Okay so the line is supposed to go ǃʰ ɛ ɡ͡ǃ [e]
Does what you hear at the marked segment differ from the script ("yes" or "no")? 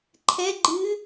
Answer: yes